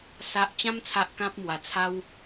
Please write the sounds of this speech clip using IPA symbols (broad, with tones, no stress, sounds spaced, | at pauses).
s a˨ ʔ t͡ɕ ã˧ m t͡sʰ a˨ ʔ k ã˦ p̚ m w a˨˩ t͡sʰ a˦ w